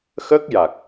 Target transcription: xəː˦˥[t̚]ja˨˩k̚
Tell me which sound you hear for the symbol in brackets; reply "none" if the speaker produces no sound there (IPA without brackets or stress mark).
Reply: k̚